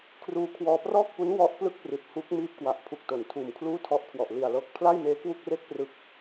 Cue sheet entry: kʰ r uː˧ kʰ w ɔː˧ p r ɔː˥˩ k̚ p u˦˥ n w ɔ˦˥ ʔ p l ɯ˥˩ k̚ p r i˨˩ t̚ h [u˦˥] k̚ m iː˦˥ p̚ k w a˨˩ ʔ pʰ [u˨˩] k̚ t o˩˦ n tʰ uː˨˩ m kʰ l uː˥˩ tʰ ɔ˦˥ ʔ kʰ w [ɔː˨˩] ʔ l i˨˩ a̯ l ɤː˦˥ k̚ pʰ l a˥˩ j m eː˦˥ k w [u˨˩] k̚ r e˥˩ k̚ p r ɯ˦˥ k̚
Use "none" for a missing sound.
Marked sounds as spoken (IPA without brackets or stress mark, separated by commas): u˦˥, u˨˩, ɔ˨˩, u˥˩